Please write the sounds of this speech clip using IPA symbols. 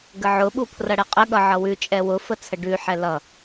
ɡ ə ʕ ʊ ɓ u pʰ r ʌ ɽ ɛ qʼ ə ɠ ʌ ʕ ʌ w ʉ t͡ʃʼ ɛ w ʊ f ə t͡sʰ ə ɖ ʉ ħ ɛ l ʌ

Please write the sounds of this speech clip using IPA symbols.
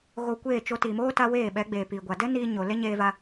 ɣ o˧ kʷ eː˦˨ t͡ʃ o˧ t iː˨ m oː˦ t a˧ w eː˦˨ ɓ ɛ˨˦ ɡ͡b eː˨ p i˨ ɡʷ a˨ d ɛ˦ n iː˧ ɲ o˨ l e˦ ɲ eː˧ v a˧

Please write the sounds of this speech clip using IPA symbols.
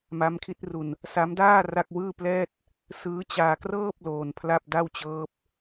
m a˦˥ m kʰ i˦˥ t̚ r u˧ n | s a˦˥ m d aː˥˩ r a˥˩ k̚ w ɯː˥˩ p l ɛː˥˩ t̚ | s ɯː˦˥ t͡ɕ aː˧ k r ɤː˥˩ p̚ l oː˧ n pʰ l a˥˩ p̚ d a˥˩ w t͡ɕ ɤː˦˥ p̚

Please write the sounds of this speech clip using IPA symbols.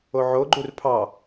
o ʕ o ɡ͡ǃ u r pʰ ɑ

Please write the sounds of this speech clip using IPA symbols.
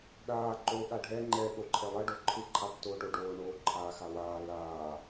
ɗ aː ǃ o ɠ a ɖʱ ɛ ŋ͡ǃ ɛ ɠ o ǃʰ ɛ lˠ ʌ ɖ o ǃʰ ɯ ǃʰ a tː oː ʈ o ɖ oː ɳ oː ǃʰ aː x a w aː l aː

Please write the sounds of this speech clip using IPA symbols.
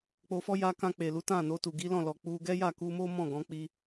k͡p o˧ f ɔ˦ j a˧ k ã˧ k͡p e˨ l u˨˦ t ã˦˨ n o˧ t u˨ ɡ i˨˦ l ɔ̃˦˨ l ɔ˨ k͡p u˧ ɡ ɛ˦ j a˦˨ k u˧ m o˦ m ɔ̃˦˨ ɡ ɔ̃˨˦ k͡p i˧

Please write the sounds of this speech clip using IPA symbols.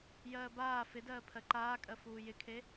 j ɜː b aː f ɪ d ɜː pʰ ɜ ǃ aː kʼ ɜ f uː j ɪ kʰ e

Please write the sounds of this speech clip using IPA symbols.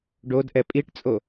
ɖ o d ʔ ɛ pʼ i ʈ t͡sʼ o

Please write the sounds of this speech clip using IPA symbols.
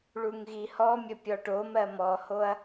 ɭ u ŋ ɣ i h ɔ mʲ ə pʲ ɔ ʈ o m ɜ m ɔ h o ɐ̯

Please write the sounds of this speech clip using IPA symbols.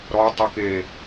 ɾ ɔ tˤ u k e

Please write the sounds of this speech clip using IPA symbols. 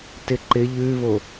t ɪ ǃ ɪ ʎ ʉ β o

